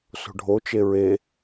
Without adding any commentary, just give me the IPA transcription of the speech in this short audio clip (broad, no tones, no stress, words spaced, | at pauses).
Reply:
so̤ɖʱo t͡ʃeɹe